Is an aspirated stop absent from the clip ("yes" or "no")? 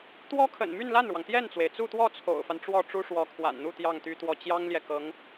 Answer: no